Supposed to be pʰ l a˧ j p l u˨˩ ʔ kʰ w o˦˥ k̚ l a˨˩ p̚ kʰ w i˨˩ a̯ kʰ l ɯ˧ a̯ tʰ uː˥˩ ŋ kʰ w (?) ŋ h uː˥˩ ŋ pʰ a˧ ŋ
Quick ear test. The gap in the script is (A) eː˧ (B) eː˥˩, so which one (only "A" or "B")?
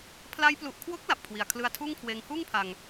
A